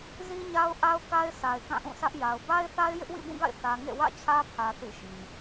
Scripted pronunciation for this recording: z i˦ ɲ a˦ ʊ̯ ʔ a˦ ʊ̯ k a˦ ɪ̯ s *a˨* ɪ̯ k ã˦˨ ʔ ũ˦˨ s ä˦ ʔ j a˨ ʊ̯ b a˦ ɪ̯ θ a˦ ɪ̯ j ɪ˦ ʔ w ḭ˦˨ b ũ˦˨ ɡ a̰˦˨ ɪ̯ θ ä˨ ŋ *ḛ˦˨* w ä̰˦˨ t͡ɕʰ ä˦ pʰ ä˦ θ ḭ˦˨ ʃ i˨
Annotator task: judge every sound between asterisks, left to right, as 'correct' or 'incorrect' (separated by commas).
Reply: correct, correct